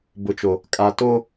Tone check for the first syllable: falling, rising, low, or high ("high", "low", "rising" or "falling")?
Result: low